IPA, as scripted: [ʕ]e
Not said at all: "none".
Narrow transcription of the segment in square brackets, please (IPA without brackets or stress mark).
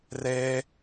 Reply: r